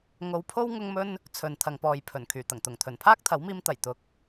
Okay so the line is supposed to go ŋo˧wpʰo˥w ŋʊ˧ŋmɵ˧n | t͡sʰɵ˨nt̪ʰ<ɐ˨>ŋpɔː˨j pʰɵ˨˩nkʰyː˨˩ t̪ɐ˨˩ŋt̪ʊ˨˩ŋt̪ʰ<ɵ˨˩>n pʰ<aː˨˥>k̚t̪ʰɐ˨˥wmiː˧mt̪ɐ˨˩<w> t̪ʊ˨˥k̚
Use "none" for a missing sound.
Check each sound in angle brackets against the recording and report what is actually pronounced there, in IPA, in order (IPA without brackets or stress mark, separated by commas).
ɐ˨, ɵ˨˩, aː˥, j